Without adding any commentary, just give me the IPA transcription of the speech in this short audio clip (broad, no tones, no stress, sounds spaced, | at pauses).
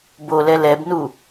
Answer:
b o l ɛ l ɛ b n u